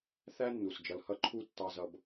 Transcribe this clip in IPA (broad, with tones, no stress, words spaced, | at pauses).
θæ˥nːu˩s d͡ʒʌ˨lhʌ˥ǃʰu˥ tːɑ˥zʌ˦b